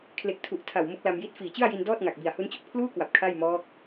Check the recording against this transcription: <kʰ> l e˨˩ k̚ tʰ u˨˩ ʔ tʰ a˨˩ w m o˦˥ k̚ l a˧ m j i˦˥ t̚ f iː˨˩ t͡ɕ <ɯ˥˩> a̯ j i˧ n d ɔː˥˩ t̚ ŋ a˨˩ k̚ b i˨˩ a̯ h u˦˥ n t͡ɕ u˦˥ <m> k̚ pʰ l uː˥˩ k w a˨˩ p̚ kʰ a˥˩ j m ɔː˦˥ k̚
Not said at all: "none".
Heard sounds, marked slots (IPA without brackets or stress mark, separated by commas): kʰ, ɯ˥˩, none